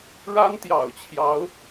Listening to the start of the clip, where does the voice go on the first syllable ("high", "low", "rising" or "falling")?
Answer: high